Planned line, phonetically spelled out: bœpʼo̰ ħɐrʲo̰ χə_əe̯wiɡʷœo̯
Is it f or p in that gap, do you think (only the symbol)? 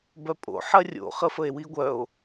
f